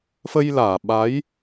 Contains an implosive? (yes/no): yes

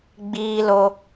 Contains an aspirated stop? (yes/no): no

